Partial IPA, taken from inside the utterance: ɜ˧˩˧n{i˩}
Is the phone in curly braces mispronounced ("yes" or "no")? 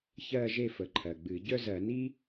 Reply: yes